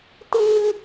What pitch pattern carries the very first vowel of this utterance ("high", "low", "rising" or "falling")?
high